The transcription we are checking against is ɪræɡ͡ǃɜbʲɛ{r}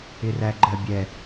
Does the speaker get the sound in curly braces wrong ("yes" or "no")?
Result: yes